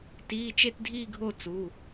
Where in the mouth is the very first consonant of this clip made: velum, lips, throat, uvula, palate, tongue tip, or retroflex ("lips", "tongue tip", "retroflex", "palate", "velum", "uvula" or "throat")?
tongue tip